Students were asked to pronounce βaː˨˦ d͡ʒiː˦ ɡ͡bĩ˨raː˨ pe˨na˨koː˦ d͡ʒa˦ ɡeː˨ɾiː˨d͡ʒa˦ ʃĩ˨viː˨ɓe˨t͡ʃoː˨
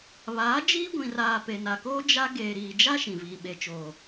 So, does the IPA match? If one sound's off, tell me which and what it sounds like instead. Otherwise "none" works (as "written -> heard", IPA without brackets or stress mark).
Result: ɡ͡b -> ɡʷ